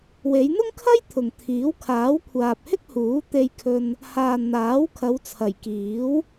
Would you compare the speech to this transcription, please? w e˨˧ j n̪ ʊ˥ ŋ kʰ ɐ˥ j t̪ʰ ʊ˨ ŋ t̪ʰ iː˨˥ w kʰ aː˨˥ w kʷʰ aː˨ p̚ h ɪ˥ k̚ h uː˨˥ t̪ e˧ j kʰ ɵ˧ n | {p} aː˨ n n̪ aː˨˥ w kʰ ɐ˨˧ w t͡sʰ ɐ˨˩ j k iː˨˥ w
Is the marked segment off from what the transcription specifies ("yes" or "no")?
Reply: yes